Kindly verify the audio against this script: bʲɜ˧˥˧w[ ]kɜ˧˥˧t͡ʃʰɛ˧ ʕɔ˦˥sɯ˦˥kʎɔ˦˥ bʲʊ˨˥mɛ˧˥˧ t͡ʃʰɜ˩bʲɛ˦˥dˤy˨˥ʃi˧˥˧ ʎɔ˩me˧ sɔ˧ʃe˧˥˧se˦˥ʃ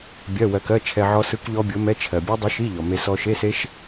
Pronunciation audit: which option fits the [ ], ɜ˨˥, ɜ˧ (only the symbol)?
ɜ˧